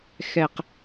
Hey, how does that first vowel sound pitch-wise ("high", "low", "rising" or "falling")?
low